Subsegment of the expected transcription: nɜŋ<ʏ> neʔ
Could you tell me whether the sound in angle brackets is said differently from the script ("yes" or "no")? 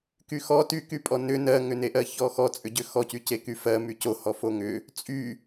no